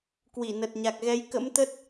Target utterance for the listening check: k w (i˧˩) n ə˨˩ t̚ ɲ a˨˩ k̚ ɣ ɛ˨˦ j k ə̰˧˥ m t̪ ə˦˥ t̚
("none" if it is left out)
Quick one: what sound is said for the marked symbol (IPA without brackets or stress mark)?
i˧˩